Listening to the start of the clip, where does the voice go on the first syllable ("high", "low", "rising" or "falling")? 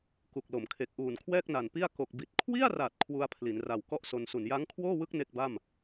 low